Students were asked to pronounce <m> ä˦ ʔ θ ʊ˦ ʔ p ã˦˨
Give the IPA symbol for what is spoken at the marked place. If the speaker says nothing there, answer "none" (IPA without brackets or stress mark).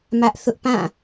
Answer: m